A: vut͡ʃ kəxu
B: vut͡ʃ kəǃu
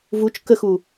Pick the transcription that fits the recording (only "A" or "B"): A